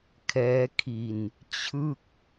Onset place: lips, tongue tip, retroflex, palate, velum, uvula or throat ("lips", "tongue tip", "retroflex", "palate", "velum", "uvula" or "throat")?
velum